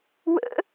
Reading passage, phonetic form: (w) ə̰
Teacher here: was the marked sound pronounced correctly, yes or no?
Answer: yes